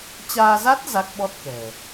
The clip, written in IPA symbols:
t͡ɕ aː˧ z a˦˥ t̚ z a˦˥ k̚ ɓ ɔ˦˥ t̚ k ɛ̤˨˩

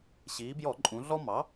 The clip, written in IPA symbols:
ɕ iː˩˧ b j ɔ˧˩˧ ǃʼ ũ˩˧ ɮ ɔ˦ m ɑ˩˥

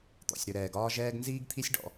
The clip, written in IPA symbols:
t̪ ɔ̰˨ sʲ ɾ ʏ˨ ɾ ɛː˨ ɡ ɒː˦ ʒ ɛː˦ ɡ n z iː˦ ɡ t̪ʰ i˦ sʲ ɖ ɔ̰˦

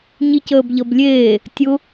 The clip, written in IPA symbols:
ɲ i c əː b ʎ ʌ b lʲ eː | tʲ ʊ

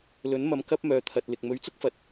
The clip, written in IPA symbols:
l ɵ˨˥ n m ɐ˨˧ m k ɐ˥ p̚ m œː˨ t̪ʰ ɐ˨ t̚ l ɪ˨ k̚ m ɵ˨˥ ɥ t͡s ʊ˥ k̚ f ɐ˨ t̚

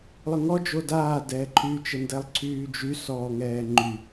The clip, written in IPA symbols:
lˠ ə ŋ ɔ d͡ʒ o d aː d ɛː ǃʰ y t͡ʃ ə n d ɛ lˠ ǀʰ yː d͡ʒ y s ɔː ŋ ɛː ŋ͡ǃ y

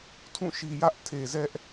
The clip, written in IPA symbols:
tʰ ũ˦˨ ʃ i˨ j ä˦ ʔ tʰ e˨ z ɛ˦ ʔ

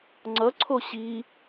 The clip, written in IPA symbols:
ŋ͡ǀ ʌ ǀʰ o ɕ i

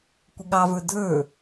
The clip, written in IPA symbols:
kʷ ɪ ɠ ɑ v ə˞ dʱ ə˞

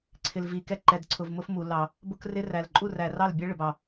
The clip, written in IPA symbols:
ǀʰ ɪ˨ l v i˨ k ɛ˦ ǃ ɛ˨ d ǀʰ ʊ˨ v m ʊ˦ f m u˨ l ɑ˨ | b ʊ˦ k r ɪ˦ r æ˨ l ǃʼ u˦˨ r æ˨ r ɑ˦˨ l bʲ æ˦ ɭ ɪ˨ b ɑ˨

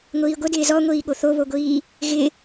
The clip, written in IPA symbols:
ŋʷ iː ɡʷ ə d ɪː z ɔ ŋʷ iː ɠ o θ o β o ɡʷ iː | ɣ ɪ

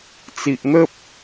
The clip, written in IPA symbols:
t͡s i˨ ʔ n̪ ə˦ p̚

